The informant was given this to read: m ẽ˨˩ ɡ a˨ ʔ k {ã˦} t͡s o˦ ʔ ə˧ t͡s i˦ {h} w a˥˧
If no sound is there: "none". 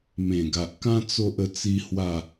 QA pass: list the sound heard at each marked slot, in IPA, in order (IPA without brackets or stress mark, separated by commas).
ã˦, h